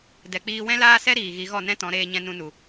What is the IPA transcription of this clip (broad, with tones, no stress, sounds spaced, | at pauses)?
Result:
d ɛ˨ k͡p iː˧ w ɛ̃˦ l aː˦ s ɛ˦ ɾ iː˨ ɣ i˨˦ ɣ ɔ˦˨ n ɛ̃˦ t ɔ̃˨˦ ɾ eː˧ ɲ ɛ̃˧ n ũ˧ n u˨